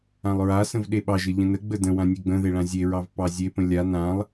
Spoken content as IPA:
ã lˠ ɹ a s ə̃ v ɗ e ɓ ɑ ʒ ə ʎ ə̃ n ə ɡ͡b ə d ə̃ w ã nʲ e ɡ͡b ə̃ ð e ɭ ã zʲ e ɹ ɑ v p ɑ zʲ e p ə̃ lʲ a n ã lˠ

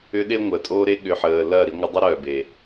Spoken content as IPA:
ʏ˦ ɗ e˦ ŋʷ əː˨ tʼ oː˦ ɾ e˦ ɠ ʏ˧ ħ əː˧ l ɐː˦˨ ɾ i˧ ŋʷ ɪ˧ dˤ ʊ˦ ɾ œː˨ b e˨

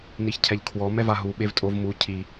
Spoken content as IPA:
n i ç cʰ ɛ ʎ kʰ w ɔ m ɛ v a ɦ u ɓ e v tʼ o v m u cʰ i

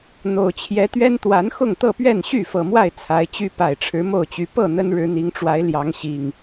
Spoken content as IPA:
n̪ o˨˩ ʊ̯ t͡ɕʰ j ɛ˨˦ t̪ ɥ ɛ˦ n t̪ w a˨˦ n x ʊ˥˨ ŋ t̪ ɤ˥˨ p ɥ ɛ˥˨ n ɕ y˥˨ f ɤ˨˩ m w a˥˨ ɪ̯ t͡sʰ a˨˦ ɪ̯ t͡ɕ y˦ p a˨˩ ɪ̯ ʈ͡ʂʰ ɻ̩˨˦ m o˥˨ ʊ̯ t͡ɕ y˨˦ p ɤ˥˨ n̪ ə˦ n ɻ ɻ̩˨˦ n̪ i˨˦ ŋ ʈ͡ʂ w a˨˦ ɪ̯ l j ɑ˨˦ ŋ ɕ i˨˩ ŋ

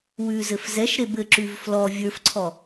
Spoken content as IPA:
w ʉ z ɘ f z ɛ ʃ ɾ e b ɘ ǁ ʉ v f l ɔ vʲ ə˞ f ǀʰ ɔ

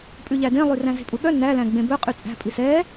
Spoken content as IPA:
pʼ ʉ ʎ æ d ẽ lˠ y r æ̃ z e̤ pʼ u ɠ œ n æ l æ̃ ɡ͡b ẽ b ɵ qʼ y t͡sʼ æ̤ pʼ i s ɛ

